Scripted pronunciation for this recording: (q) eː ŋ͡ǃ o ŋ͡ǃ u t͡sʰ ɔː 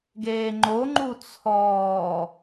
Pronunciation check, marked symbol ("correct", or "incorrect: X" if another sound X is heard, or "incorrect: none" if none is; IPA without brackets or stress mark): incorrect: ɡ